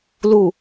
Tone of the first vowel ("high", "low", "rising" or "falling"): low